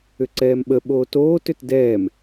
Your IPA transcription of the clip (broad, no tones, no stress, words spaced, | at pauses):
ʏǀɛːmɓə ɓoːtoːt ʏtdɛːm